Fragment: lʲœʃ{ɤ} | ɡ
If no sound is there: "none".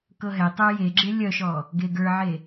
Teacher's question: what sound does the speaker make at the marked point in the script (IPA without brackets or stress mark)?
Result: ɔ